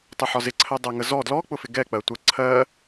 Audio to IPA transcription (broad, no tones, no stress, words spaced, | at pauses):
tˤɛħɒzɪǀʰɜ dˤæŋəzɔ dlɔk͡pʊfɪ ɡɛ k͡pɜtʷə ǀʰɜ